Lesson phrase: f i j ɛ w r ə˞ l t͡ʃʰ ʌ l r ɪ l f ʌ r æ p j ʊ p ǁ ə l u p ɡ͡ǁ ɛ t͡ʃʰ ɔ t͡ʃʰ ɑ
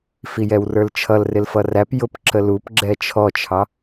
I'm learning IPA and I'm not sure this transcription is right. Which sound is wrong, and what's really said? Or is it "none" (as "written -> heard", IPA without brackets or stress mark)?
none